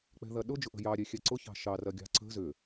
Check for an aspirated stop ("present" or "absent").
absent